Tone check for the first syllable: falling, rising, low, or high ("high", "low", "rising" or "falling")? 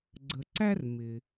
low